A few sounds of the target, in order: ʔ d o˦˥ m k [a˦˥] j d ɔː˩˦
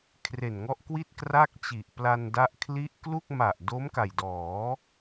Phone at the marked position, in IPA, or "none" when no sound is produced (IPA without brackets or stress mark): a˨˩